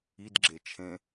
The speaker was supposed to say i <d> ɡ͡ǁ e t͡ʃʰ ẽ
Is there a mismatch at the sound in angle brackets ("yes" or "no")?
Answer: no